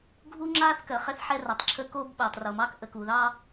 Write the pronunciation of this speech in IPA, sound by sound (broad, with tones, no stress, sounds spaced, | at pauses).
ɡʱ u˦ ŋ͡ǁ a˦ θ k ɜ˨ χ ɛ˦ θ ħ ɛ˦ r a˨ tˤ ǁʰ ə˦ k o˦ b ɓ ɜ˨ tˤ r o˨ m ɑ˦ k ʔ ə˨ k u˨ ð ɑ˦